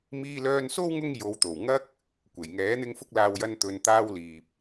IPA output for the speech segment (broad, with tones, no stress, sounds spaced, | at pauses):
m iː˧ l œː˧ n s o˥ w ŋ ʊ˥ ŋ j o˨˧ w t̪ o˨˩ w ŋ ɐ˧ k̚ | kʷ e˨˩ j ŋ ɛː˨˥ n̪ ɪ˥ ŋ f ʊ˥ k̚ l aː˧ w j ɐ˥ n t̪ ɵ˧ n t̪ aː˥ w l iː˨ p̚